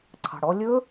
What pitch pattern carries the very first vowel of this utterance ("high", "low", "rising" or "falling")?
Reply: low